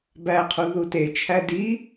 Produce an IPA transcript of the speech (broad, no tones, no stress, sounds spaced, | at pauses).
b æ qʰ u ð u t e t͡ʃʰ æ d i